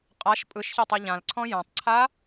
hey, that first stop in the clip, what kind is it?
ejective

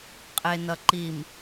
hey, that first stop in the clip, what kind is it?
ejective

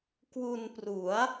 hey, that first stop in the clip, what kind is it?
plain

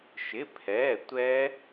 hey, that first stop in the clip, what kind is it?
aspirated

